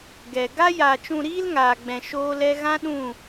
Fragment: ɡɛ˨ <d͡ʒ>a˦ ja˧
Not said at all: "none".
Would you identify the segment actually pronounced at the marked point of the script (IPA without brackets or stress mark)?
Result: ɡ